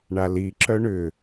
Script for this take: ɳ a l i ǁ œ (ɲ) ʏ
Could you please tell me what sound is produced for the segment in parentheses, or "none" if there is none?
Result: ɳ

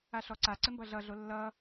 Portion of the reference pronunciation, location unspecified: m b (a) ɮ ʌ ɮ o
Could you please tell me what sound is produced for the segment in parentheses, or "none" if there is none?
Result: ʌ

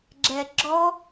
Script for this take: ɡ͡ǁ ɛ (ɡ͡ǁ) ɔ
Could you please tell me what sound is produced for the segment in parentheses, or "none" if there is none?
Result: ɡ͡ǁ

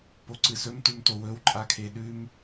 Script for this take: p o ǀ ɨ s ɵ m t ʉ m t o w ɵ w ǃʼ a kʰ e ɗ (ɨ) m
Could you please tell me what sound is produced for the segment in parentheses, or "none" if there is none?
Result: ʉ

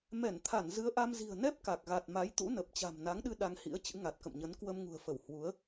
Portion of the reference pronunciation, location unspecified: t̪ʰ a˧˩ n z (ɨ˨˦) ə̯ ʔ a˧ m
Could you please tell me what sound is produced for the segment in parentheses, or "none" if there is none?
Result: ɨ˨˦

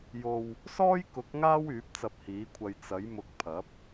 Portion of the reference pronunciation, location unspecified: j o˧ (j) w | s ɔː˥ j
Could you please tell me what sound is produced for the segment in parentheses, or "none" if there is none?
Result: none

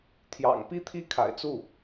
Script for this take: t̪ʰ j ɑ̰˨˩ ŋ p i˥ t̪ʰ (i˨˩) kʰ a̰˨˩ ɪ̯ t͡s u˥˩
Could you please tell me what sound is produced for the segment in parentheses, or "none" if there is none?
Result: i˥˩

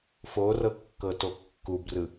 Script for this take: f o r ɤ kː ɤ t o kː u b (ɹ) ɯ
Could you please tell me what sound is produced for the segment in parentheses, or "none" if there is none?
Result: r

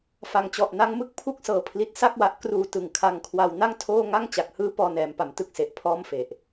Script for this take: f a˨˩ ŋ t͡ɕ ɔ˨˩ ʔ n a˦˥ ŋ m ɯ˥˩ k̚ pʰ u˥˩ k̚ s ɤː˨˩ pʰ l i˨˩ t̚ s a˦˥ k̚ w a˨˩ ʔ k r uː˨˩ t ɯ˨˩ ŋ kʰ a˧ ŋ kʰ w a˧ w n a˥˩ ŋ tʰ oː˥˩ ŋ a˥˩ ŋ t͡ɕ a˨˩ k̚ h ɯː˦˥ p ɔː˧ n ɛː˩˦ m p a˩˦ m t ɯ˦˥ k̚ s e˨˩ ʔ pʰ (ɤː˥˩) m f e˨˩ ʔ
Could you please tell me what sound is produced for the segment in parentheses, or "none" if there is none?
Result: ɔː˥˩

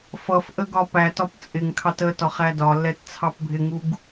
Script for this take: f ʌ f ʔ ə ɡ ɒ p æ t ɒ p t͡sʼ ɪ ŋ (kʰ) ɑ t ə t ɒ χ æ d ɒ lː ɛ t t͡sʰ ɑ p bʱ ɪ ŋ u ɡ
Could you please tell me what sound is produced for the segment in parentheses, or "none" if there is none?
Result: kʰ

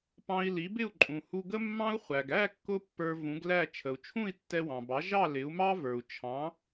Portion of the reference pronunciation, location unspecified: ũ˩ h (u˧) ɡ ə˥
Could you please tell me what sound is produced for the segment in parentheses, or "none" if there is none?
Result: u˧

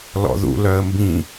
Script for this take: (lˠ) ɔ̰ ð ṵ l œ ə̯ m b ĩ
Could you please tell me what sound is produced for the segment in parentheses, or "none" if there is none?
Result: l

